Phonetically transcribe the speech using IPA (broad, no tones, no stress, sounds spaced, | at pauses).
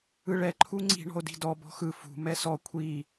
ɯ ɭ ɛ ǃʰ u ŋ͡ǀ i̤ ɳ ɔ̤ o̯ d i̤ d ɔ b ɔ̤ x ɯ f ṳ m ɛ s ɔ kʷʰ i